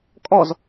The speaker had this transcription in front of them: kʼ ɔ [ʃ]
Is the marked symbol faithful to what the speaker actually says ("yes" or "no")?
no